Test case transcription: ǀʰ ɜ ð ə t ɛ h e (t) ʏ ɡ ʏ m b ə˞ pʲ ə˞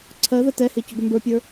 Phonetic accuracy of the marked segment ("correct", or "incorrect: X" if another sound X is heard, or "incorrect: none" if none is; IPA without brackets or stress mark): incorrect: c